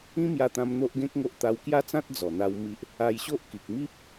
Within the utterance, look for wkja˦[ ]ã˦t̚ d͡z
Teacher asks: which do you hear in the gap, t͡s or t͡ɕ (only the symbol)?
t͡s